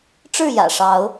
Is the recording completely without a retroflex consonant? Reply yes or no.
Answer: no